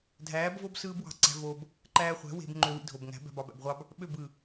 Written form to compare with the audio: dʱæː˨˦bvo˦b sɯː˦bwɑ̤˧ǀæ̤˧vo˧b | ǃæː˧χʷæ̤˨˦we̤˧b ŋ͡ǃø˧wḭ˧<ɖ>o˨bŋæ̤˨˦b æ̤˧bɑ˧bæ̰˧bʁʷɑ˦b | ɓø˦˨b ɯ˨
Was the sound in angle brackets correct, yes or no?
no